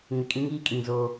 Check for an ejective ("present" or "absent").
present